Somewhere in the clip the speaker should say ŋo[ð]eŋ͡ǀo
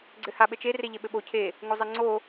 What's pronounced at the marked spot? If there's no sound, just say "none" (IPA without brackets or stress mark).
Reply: zˤ